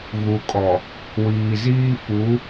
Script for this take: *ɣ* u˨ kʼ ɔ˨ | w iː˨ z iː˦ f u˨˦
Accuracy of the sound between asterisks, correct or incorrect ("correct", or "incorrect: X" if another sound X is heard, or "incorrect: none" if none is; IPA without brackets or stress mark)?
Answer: correct